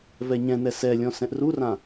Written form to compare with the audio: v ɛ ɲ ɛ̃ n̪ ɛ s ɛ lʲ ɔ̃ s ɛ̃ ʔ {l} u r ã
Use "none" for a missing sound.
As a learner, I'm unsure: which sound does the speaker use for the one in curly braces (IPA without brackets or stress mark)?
r